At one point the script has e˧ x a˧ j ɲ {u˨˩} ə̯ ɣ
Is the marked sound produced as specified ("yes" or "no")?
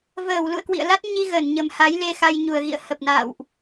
yes